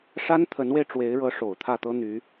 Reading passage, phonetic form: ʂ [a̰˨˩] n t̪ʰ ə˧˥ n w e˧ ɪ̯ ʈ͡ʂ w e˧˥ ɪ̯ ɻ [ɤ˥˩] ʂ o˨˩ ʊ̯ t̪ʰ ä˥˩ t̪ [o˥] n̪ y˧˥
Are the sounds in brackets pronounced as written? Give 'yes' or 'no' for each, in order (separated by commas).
no, no, no